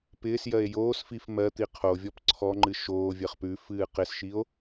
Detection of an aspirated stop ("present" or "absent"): present